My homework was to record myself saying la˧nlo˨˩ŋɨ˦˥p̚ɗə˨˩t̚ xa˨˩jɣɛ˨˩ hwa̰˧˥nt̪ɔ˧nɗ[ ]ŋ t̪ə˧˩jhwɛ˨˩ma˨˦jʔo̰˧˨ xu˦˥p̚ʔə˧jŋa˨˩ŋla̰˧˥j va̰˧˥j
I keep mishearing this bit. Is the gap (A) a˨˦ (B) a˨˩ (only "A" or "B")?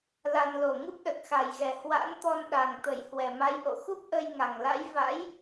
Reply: B